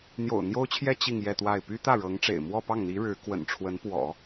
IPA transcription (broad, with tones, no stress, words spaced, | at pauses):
n̪jo̰˨˩ʊ̯ n̪jo˥ʊ̯t͡ɕʰjɛ˥ t͡ɕi˥˧ŋjɛ˥˧t̪wa˥˩ɪ̯ py˥ t̪ä˥˩ɻɤ˧˥ŋʈ͡ʂḛ˨˩ɪ̯ mwɔ˥˧pɑ˥˩ŋn̪i˧˥ ɻɻ̩˧˥ kwə̰˨˩nʈ͡ʂʰwə˧˥npwɔ̰˨˩˦